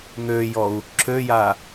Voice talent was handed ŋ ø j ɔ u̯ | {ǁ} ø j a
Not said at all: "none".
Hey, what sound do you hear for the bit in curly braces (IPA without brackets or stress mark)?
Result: ǁ